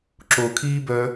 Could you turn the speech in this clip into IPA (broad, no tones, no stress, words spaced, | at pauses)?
ǁokʰiːbœ